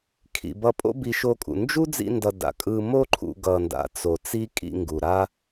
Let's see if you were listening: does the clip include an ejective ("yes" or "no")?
yes